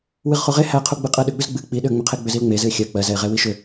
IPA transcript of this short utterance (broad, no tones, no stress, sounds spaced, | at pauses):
w ɨ ʁ χ u ʁ e h æ qʰ u ɡ͡b ɨ qʼ ɜ ɗ ʏ ɡ͡b ʏ z ɡ͡b ɨ k͡p i ɗ ʏ ə̯ ŋ͡m ʏ qʰ e ɡ͡b ʏ z i l ŋ͡m e z ɨ ɪ̯ xʲ ɜ k͡p ɜ z ɛ ɪ̯ ʁ ɛ w i ʃ ʏ